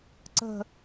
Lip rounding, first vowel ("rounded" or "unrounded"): unrounded